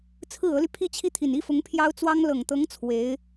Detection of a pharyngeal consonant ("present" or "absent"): absent